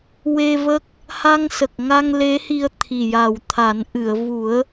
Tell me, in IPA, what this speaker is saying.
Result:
w e˧ v ə˦˥ k̚ | h a˧ ŋ s ə˨˩ k̚ ŋ a˧ ŋ l e˧˥ h i˧ ə̯ t̪ʰ i˨˩ j a˨˩ w t̪ʰ a˨˩˦ n ʔ ɨ˨˩˨ ə̯ v u˨˩˦ ə̯

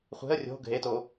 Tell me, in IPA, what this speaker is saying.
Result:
χʷ e̤ ə̯ rʲ o̤ ɡʱ e t o

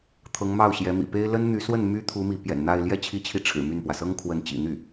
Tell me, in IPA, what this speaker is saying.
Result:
t̪ʰ ɤ˧˥ ŋ m ɑ˥˩ ʊ̯ ɕ j ɛ˧˥ m ḭ˨˩ p e˥ ɪ̯ l ə˥ n n̪ y˧˥ s w ə˥˩ n m y˥ t̪ʰ u˧˥ m i˧˥ p j ɛ̰˨˩ n n̪ a˥˧ ɪ̯ l j ɛ˥˧ t͡ɕʰ i˥˧ t͡ɕʰ i˥˩ ʈ͡ʂʰ ɻ̩˨˩ m y˥˩ n p w ä˩ s ɤ˥ ŋ kʰ w ə˧˥ n t͡ɕ ḭ˨˩ n̪ y˥˩

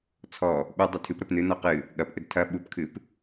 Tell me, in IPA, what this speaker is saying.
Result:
t͡sʰ ɔ | ɓ u dˤ ɐ tʰ ɨ p ɾ ɐ p n ɨ n ɔ q ɨ | ɠ ɐ p ʔ ɘ d tʰ ɐ ɓ u p kʰ ɨ p

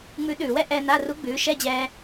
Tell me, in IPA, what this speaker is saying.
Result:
ŋ͡m ʉ˧˥ ɗ ʉː˧˩˧ w ɛ˥ ʔ ɛː˧ n a˧˥˧ r u˧˥ ɡ͡b ʉː˩˥ ʃ ɛ˧˥˧ d͡ʑ ɛː˧

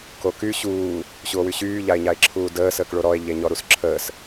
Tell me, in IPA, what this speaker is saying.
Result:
k o k y ɕ uː | ɕ u o̯ w y ɕ yː ʎ a e̯ ɲ a e̯ ǁʰ uː d əː s əː k ɭ o ɾ ɔ e̯ ʎ e ɲ ɔ ɾ u s ǁʰ əː s

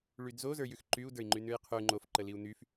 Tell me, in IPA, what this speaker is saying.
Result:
ɭ y d z o z ə˞ j ʉ x ǃ y u̯ d ə˞ i̯ ŋ͡ǃ y n ʉ j qʰ ʉ ŋ͡ǃ o f ǃ ə l i u̯ n̪ y f

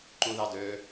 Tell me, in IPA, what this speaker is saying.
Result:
ǃ ũ ð ɑ d øː

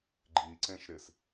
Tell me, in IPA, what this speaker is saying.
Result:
ɡ͡ǃ i ǀ ẽ ʃ ɾ ɪ s

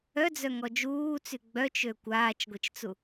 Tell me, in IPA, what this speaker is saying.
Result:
œ d͡z œ ŋ ɔ d͡ʒ uː t͡s y ɡ͡b œ t͡ʃ ø kʷ aː t͡ʃ ɡʷ e t͡ʃ t͡s u

